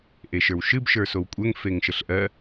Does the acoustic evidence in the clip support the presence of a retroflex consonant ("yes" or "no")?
no